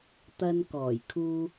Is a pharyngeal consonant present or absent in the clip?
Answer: absent